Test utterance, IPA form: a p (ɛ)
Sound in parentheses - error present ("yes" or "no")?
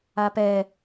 no